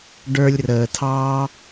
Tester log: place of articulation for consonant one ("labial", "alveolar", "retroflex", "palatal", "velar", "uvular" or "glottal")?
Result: retroflex